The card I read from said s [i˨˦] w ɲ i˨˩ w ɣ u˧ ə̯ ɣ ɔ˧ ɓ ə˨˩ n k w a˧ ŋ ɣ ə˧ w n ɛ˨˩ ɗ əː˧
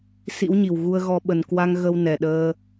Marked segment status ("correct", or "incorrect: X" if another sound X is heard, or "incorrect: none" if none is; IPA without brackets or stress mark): incorrect: ḭ˧˥